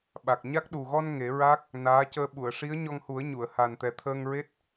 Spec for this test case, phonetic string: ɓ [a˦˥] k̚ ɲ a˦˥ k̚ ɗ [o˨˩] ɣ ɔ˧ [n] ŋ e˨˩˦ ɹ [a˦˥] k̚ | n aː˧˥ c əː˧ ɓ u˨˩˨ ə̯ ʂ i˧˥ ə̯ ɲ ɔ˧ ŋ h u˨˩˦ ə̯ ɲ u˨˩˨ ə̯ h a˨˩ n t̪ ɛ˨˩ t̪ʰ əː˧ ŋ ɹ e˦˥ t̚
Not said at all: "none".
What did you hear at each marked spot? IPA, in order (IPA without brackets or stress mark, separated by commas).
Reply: a˨˩, u˨˩, n, a˦˥